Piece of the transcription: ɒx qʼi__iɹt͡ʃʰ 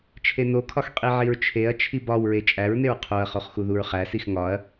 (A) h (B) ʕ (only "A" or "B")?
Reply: B